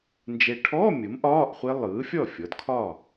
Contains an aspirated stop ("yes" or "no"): yes